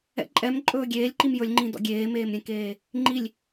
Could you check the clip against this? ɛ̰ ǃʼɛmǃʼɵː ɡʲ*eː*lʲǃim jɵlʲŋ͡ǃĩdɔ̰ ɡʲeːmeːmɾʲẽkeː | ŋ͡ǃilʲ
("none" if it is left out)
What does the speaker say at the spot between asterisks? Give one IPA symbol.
eː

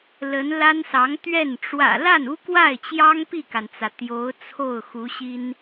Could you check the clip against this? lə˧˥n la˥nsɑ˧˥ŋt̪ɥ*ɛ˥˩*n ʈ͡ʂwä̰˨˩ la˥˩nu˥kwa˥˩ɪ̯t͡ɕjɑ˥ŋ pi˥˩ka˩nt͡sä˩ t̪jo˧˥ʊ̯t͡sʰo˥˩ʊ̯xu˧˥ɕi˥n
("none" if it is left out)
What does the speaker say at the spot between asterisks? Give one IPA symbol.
ɛ˥˩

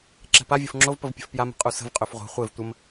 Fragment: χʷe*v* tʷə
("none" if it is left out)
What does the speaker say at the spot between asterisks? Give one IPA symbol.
v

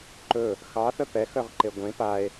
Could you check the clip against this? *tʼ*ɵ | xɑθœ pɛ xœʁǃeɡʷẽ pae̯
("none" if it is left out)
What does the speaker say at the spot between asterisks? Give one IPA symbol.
ǃ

